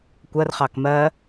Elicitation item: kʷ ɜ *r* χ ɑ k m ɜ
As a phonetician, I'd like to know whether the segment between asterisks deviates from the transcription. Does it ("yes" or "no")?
no